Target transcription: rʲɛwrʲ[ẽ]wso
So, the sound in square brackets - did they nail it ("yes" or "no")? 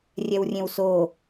yes